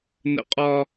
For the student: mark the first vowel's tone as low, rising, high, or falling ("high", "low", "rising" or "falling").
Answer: high